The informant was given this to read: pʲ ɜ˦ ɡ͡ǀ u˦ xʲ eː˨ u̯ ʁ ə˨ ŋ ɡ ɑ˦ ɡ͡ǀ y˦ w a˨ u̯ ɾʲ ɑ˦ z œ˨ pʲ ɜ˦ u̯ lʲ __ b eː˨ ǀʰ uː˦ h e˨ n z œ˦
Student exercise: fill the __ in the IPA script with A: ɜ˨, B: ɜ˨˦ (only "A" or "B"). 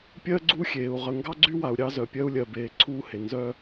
A